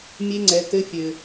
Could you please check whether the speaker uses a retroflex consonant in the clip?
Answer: no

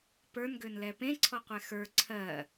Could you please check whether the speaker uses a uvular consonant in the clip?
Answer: yes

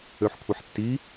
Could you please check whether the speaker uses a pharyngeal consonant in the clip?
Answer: yes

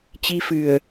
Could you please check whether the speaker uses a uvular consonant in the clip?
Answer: no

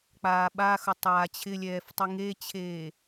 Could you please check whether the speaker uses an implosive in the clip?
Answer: yes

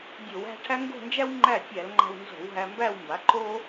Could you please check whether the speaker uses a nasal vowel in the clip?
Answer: no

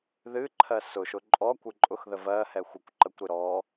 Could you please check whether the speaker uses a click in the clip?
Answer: yes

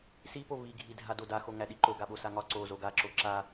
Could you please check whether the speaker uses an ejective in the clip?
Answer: no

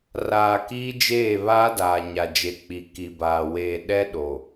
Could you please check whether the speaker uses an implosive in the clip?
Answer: yes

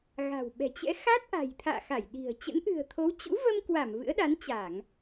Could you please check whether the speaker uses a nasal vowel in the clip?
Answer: no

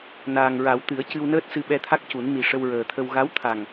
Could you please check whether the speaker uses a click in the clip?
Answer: no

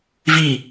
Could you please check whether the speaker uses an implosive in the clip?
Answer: no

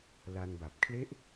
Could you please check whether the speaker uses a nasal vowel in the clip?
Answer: no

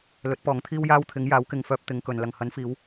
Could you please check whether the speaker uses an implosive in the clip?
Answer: no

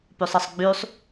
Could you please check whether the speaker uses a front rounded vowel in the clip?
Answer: yes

